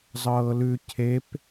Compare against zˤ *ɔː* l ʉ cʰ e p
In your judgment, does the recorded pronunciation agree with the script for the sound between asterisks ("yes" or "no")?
no